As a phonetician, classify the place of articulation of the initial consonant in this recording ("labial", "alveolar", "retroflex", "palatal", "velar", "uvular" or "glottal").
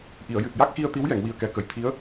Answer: glottal